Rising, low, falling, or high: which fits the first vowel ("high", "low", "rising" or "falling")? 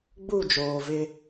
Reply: falling